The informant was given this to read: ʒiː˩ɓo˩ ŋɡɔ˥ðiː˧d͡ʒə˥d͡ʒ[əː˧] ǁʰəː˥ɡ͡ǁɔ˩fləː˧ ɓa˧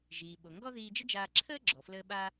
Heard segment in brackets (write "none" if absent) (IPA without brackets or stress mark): aː˧